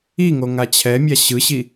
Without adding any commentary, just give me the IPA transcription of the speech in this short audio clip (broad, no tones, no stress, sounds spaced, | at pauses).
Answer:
i ŋ o ŋ a t͡ɕʰ ɛ mʲ a ɕ ɯ ɕ i